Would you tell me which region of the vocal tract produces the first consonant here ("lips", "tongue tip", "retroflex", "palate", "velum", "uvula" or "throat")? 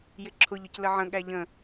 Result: palate